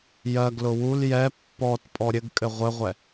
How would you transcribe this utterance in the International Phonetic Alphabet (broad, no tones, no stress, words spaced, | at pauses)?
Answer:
jɜɡlʊ wul jɛ pːɔt pʼɔɾʲɘɡkʼɘ ʁʷɘʁʷɛ